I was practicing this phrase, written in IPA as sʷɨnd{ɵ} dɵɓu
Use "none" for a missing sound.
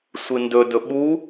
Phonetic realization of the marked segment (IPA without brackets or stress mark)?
ɵ